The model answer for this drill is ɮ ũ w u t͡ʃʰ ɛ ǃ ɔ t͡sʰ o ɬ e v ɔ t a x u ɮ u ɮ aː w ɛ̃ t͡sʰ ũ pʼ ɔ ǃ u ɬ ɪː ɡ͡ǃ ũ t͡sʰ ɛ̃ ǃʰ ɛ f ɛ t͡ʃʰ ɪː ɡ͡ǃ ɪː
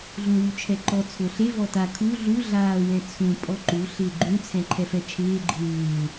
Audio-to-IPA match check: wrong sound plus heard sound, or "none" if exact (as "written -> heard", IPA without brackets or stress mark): x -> kʰ